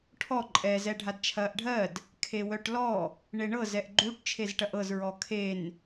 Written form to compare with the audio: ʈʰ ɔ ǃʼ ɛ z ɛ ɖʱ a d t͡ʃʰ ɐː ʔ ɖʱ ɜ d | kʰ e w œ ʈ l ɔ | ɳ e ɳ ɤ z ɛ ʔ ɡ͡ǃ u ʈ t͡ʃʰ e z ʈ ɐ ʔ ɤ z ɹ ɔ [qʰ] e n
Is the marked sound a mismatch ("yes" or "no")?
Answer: yes